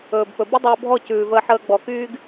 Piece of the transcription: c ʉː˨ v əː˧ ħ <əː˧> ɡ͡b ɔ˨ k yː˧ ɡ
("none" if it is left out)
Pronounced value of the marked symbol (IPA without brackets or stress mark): əː˧